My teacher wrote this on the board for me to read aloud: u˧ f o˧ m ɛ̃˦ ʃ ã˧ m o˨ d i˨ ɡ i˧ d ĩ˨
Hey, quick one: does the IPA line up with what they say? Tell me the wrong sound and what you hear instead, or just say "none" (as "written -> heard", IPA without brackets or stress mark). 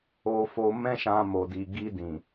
u˧ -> o˧